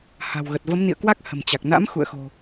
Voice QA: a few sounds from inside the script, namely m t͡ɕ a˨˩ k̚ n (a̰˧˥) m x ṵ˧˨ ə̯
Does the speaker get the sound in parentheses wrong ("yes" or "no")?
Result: no